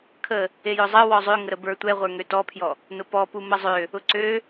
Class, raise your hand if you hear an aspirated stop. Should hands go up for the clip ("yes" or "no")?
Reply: yes